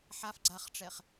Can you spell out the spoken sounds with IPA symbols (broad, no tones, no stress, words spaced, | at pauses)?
ħaf ɡ͡ǀaχʈ͡ʂɛχ